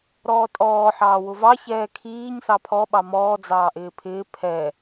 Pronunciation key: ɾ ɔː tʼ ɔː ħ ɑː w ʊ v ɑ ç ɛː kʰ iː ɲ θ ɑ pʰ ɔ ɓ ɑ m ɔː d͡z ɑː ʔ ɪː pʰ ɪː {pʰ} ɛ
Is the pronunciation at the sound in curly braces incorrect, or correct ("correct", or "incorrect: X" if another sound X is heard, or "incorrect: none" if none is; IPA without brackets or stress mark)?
correct